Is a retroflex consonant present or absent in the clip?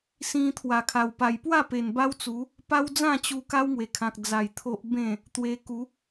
absent